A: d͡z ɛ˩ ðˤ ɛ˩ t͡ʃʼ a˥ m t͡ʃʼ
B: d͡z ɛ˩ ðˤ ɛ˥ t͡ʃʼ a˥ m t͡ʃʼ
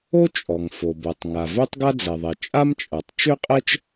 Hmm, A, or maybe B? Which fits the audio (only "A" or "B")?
A